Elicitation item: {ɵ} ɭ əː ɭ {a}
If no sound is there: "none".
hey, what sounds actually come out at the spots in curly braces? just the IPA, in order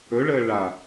ɵ, a

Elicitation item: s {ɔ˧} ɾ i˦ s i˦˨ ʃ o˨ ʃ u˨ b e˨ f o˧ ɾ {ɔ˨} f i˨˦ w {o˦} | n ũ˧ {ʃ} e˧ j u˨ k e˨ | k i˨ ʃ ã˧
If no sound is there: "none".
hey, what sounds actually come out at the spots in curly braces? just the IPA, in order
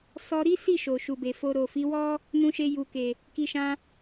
ɔ˧, o˨, ɔ˦, ʃ

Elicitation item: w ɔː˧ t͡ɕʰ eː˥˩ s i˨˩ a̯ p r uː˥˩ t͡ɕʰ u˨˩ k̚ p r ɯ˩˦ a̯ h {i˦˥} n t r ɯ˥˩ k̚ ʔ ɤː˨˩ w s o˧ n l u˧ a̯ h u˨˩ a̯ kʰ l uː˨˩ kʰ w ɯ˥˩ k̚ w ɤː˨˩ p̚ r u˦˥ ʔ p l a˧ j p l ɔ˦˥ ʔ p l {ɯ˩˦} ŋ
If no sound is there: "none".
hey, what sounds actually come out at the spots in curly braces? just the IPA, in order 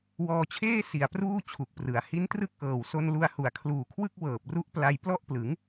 i˦˥, ɯ˩˦

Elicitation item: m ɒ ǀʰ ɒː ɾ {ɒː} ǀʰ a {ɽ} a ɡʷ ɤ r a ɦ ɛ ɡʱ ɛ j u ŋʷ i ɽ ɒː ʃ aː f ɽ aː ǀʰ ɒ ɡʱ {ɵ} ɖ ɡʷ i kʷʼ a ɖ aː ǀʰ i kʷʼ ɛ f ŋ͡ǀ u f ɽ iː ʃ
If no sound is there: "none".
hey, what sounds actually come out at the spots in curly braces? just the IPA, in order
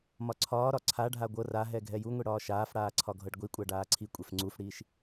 ɒ, ɖʱ, ɤ

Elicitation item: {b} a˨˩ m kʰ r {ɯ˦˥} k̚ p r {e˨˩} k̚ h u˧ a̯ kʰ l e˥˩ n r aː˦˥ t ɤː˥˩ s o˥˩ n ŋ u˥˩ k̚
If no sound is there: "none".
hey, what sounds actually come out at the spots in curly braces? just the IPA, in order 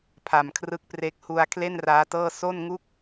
pʰ, ɯ˦˥, e˦˥

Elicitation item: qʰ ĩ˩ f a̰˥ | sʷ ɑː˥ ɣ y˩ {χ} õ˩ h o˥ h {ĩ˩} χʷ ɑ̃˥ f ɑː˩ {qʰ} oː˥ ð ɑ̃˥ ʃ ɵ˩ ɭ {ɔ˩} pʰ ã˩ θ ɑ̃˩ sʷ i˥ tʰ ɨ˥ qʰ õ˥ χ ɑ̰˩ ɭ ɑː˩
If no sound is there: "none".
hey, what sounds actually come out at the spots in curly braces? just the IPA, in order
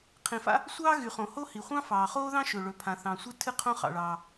χ, i˩, χ, ɵ˩

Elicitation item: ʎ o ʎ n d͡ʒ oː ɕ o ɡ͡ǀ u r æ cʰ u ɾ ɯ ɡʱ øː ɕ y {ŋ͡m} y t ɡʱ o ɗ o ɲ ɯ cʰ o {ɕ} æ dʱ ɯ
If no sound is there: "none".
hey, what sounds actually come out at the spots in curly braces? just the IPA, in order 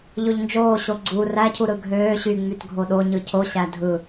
ŋ͡m, ɕ

